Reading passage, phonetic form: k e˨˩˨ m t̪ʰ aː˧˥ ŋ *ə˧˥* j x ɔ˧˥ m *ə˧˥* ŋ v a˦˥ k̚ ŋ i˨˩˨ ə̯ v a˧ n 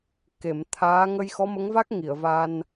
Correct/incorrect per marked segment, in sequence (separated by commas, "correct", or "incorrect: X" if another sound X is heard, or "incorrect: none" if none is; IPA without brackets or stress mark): incorrect: ə˧, correct